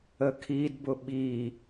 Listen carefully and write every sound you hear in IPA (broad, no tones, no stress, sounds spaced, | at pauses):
ə kʰ i d b ʊ ɓ i